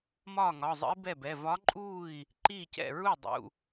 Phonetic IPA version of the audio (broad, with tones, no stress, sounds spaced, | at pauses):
m ɒː˥˩ ŋ ɒ˩˧˩ zˤ ə̰˧˥ i̯ b ɛ˥˩ b ɛ˩˧˩ v ɒ˧˥ ǃʼ uː˥˩ i̯ | ǃ iː˥˩ c ɛ̰˥˩ ɹ u˥˩ dˤ ṵ˩˧˩